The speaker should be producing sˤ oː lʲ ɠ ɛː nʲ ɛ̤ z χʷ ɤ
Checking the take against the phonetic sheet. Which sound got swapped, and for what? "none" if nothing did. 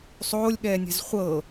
none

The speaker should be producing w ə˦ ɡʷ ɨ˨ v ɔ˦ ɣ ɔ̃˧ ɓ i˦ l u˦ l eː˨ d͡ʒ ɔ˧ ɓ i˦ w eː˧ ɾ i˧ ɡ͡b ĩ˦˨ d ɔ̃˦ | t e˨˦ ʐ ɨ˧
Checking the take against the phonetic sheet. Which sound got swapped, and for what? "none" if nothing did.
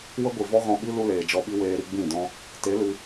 ʐ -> l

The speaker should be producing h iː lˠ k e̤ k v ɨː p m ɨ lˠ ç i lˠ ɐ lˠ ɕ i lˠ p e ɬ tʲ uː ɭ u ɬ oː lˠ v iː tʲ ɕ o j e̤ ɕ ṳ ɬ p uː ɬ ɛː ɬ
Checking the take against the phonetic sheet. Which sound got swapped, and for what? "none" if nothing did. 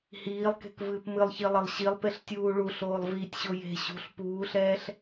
none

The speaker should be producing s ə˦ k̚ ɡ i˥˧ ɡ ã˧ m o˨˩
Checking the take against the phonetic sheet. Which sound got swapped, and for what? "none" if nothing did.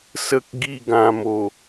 none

